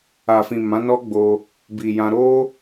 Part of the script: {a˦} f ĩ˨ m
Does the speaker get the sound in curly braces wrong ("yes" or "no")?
yes